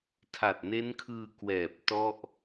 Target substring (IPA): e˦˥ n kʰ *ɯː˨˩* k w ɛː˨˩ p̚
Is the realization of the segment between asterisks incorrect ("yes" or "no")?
yes